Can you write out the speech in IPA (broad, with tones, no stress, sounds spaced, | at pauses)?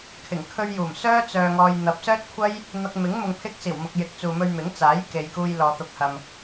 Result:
kʰ ɪ˨˩ ŋ kʰ ɵ˧ ɥ j uː˨˩ m s œː˥ t͡s œː˧ ŋ ɔː˧ j n̪ ɐ˨˥ p̚ s œː˥ t̚ kʷʰ ɐ˥ j | n̪ ɐ˧ k̚ m ɪ˨˥ ŋ m ʊ˨ ŋ pʰ ɪ˧ k̚ s iː˨˩ w m ʊ˨ k̚ j ɪ˨˥ k̚ t͡s uː˨ m ɵ˧ ɥ m ɪ˨˥ ŋ t͡s aː˨˥ j k e˨ j k uː˧ j l ɔː˨ t̪ ʊ˨˥ k̚ h ɐ˨ m